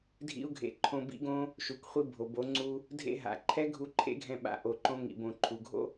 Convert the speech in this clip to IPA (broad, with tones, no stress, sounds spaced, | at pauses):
dʱ ḭ˦ u̯ ɡʱ ḛ˧ ǃʰ õ˧ b ḭ˦ ɡ õ˦ | ʃ u˨ k χʷ i˧ bʱ o˨ b o˨˦ ŋ͡ǀ u˧ | dʱ ḛ˦ ɦ a̰˨ ǃʰ ɛ˦ ɡʱ u˧ ǃʰ ḛ˦ ɡʱ ɛ̃˧ ɓ a̰˧ ʔ o˨ ǃ õ˧ ŋ ḭ˨ b õ˨ ǃʰ u˨ ɡʱ o̰˦